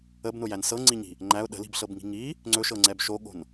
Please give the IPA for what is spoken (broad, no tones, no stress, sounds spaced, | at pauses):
ə b n ʊ j æ n s ɤ ŋ͡ǀ i ɲ i̤ | ŋ͡ǃ æ ʊ̯ ɗ ə̤ l i̤ b ɬ ɤ b ŋ i̤ ŋ i | ŋ͡ǀ ɵ ʃ ɤ ŋ͡ǀ ɛ b ʃ o ɠ o̤ n